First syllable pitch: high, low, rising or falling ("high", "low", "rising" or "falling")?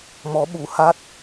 rising